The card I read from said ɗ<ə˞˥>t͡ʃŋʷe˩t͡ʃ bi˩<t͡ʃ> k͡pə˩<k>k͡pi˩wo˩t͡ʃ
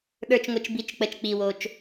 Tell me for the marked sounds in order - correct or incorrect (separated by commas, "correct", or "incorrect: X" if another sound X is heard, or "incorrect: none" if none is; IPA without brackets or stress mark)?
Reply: incorrect: ə˞˩, correct, incorrect: t͡ʃ